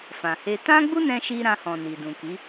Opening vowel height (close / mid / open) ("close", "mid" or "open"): open